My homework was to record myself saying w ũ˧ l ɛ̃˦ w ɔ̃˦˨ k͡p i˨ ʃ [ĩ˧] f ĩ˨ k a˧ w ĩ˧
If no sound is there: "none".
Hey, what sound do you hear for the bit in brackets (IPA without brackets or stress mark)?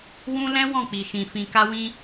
ĩ˨